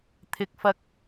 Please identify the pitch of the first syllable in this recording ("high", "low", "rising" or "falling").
rising